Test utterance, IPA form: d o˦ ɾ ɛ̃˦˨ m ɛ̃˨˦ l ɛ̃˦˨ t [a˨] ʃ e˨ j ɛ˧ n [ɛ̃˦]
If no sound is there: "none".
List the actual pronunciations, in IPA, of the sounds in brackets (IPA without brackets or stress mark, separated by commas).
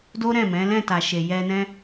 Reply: a˨, ɛ̃˦